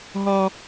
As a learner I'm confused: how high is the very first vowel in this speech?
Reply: low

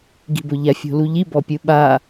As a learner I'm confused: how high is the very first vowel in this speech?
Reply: high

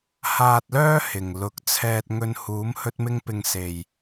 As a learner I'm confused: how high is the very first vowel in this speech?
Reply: low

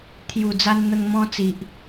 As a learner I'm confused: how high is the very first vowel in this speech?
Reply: high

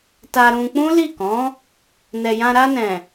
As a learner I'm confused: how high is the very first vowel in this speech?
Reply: low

